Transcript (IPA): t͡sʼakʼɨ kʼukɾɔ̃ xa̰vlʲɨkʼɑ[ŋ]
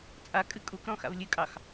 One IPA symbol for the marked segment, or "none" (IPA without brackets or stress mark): x